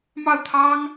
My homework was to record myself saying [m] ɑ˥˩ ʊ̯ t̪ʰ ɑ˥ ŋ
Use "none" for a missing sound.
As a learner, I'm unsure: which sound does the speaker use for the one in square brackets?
m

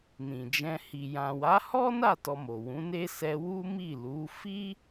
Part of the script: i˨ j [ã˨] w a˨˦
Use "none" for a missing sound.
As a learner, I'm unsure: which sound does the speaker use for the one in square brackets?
ã˨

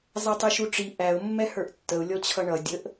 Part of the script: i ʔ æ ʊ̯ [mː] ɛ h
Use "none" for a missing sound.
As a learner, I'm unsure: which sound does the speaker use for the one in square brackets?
mː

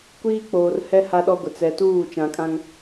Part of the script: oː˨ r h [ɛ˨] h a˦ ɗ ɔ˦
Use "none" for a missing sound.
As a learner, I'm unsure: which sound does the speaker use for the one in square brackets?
ɛ˦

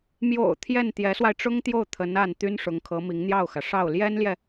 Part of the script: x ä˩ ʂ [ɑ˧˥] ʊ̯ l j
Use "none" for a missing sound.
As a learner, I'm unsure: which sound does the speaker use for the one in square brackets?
ɑ˥˩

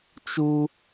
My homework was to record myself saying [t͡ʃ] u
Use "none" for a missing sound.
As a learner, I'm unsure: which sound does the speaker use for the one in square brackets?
t͡ʃ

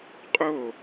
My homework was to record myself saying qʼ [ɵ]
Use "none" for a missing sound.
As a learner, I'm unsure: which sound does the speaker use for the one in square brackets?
o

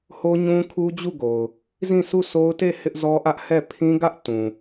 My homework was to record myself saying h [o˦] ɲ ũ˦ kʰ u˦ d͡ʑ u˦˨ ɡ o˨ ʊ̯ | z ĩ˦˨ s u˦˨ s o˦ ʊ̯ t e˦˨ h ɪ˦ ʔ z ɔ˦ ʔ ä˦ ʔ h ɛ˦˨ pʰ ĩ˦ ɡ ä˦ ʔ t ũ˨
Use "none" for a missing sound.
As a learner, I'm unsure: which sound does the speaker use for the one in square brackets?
o˦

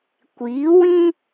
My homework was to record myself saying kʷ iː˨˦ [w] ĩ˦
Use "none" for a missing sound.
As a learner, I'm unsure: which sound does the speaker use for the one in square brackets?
w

